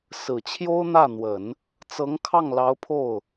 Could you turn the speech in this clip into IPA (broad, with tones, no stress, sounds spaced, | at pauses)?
s ɹ̩˨˩ t͡ɕʰ j o˥ ʊ̯ n̪ ä˥˩ n̪ w ə˨˩˦ n | t͡s ɤ˧˥ ŋ kʰ ɑ˥˩ ŋ l ɑ˧˥ ʊ̯ pʰ o˥˩ ʊ̯